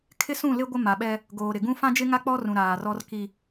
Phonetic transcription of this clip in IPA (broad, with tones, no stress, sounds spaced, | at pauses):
kʰ ɪ˦ s ũ˦˨ l ɪ˦ ɡʷ ɪ˦ m a˨ ɓ ɛ˦ | ɡ oː˨ ɾ ɪ˨ ɡ ũ˦ f ã˦ d͡ʒ ɪ˦ ŋ a˦ k͡p ɔ˦ r ũ˨ ɾ aː˨ r ɔ˦ r k i˦